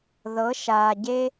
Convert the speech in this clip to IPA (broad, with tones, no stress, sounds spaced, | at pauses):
ð ɤ˨˦ ʃ aː˨ ɟ e˦